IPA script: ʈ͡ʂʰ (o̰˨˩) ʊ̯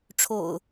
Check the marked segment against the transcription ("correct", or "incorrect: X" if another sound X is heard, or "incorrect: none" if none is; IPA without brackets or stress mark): correct